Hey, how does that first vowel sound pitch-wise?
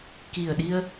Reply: low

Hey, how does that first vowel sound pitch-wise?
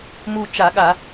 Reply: falling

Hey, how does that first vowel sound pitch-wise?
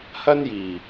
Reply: high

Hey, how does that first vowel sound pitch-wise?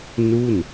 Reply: falling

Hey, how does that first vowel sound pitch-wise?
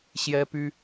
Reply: high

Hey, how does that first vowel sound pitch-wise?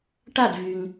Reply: falling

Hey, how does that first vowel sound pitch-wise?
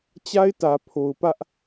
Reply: high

